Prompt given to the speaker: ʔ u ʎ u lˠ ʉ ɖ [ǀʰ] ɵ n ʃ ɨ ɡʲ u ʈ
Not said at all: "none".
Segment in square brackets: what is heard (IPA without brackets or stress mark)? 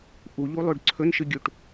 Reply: ǀʰ